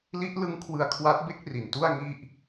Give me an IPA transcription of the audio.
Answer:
l i˦˥ ʔ l ɯ˦˥ ŋ kʰ w ɯ˧ a̯ kʰ w a˦˥ t̚ b e˥˩ k̚ r i˨˩ n t u˥˩ a̯ ŋ i˥˩ ʔ

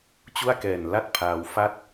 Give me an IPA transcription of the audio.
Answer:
t͡ɕ u˥˩ a̯ k ɛː˨˩ n l a˥˩ t̚ pʰ aː˧ w f a˥˩ t̚

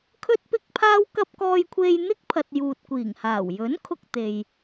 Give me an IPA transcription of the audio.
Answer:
kʰ ɵ˥ t̚ p ɪ˥ k̚ pʰ aː˥ w k ɐ˥ p̚ k ɔː˧ j kʷʰ e˧ j n̪ ɪ˥ k̚ pʰ ɐ˨ t̚ j uː˨ t̚ kʷ iː˨˩ ŋ h aː˨˩ w j ɵ˨˥ n kʰ ʊ˧ k̚ t̪ e˨ j

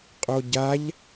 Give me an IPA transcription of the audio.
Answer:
qʼ o ɟ a ʎ

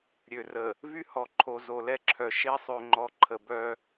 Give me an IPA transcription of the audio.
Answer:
ɾʲ ø˨ r ə˨ | v y˦ h ɔ˨ ǃʰ o˨ z o˨ l ɛ˦ ǁʰ œ˨ ʃ e˦ sˤ ø˨ ŋ͡ǃ ɔ˨ ǃʰ ə˨ b œ˦

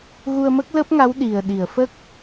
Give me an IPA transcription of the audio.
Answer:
ɣ u˧ ə̯ m ə˦˥ k̚ l əː˦˥ p̚ ŋ a˧˥ w ɗ i˨˩ ə̯ ɗ i˨˩˨ ə̯ f ə˦˥ k̚

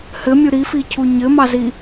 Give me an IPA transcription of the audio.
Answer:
h ɘ mʲ u ɾ i f i cʰ u ɲ ɘ m ɑ z i

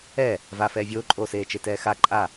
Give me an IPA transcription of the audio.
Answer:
ɛ | v a f ɛː vʲ oː ǃʼ oː s eː t͡ʃ e t ɛː x a ǃʼ a

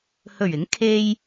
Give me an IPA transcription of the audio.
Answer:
h ɵ˨˩ ɥ ɪ˨˥ ŋ kʰ e˧ j

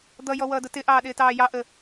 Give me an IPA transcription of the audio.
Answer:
d̪ ʌ j ɔ w ʌː d ʊ t ɪ ʔ ɑː ɗ ɪː t ɑː j ɑ ʔ ə

